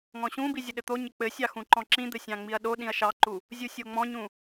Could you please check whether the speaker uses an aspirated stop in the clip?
no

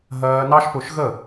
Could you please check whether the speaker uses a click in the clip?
no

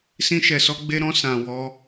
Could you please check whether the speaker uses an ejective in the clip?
no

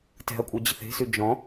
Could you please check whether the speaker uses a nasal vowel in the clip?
yes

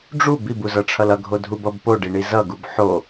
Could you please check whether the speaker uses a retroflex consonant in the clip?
yes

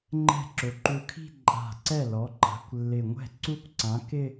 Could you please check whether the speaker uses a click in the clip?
yes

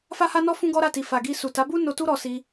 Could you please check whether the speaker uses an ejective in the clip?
no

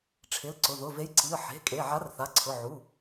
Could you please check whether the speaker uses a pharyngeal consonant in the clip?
yes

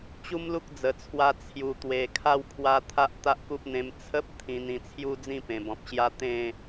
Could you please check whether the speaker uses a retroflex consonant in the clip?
no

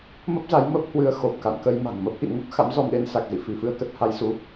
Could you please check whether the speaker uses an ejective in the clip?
no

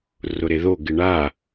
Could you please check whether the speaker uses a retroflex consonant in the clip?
yes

